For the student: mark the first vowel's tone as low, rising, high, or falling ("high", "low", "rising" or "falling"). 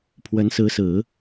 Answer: rising